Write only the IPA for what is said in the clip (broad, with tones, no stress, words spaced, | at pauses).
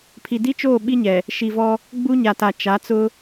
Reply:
pʰi˨di˦t͡ʃoː˦˨ ɓi˦ɲɛ˨ | ʃi˨vɔ˦ | ɡ͡bu˦ɲa˨ta˨ t͡ʃa˨˦t͡sʊ˦